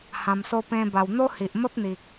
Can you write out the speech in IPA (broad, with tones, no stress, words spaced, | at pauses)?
hã˧mso˦pẽ˦ba˧w n̪o˦hi˨ʔmə˦p̚n̪i˨k̚